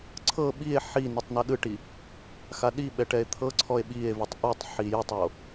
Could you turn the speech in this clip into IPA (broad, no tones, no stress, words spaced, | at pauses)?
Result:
ǀʰɤ ɓie̯ ħi nitˤnɤɗɯʈi | xaɗiɓɛ ʈɛe̯t̪ʰɤǀʰɔe̯ ɓie̯vitˤ ʔutˤ ħijɛtˤo